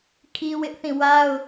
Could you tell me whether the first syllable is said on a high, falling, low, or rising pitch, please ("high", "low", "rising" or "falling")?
high